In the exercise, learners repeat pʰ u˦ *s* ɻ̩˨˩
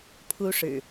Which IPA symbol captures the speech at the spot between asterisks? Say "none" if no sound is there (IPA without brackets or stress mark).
ʂ